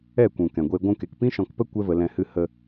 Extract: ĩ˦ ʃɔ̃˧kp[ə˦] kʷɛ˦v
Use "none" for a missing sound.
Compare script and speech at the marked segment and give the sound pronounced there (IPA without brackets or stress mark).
ə˦